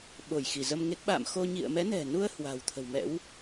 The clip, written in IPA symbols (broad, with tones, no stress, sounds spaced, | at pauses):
ɓ o˧˩ j x i˧˩ z ə˧ m ŋ e˦˥ k̚ ɓ a̰˧˨ m x o˧ ɲ ḭ˧˨ ə̯ m ɛ˨˦ n ɛ̤˨˩ n u˧ ə̯ h w a̤˨˩ w t̪ʰ ə̤˨˩ w m ɛ̰˧˥ w